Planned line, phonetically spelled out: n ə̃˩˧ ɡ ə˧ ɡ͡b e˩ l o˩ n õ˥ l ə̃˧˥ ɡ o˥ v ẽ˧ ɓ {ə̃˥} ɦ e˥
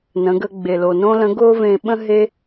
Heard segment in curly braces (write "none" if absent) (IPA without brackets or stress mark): ə̃˥